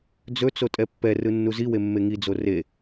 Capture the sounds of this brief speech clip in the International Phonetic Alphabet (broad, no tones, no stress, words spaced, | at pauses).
d͡zɵt͡so tʼɛpːɛrɯ nːuziwe mːeŋid͡zo re